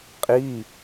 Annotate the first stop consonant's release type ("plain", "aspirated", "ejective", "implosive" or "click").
ejective